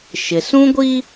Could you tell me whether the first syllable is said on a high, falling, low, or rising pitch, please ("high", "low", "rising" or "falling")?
low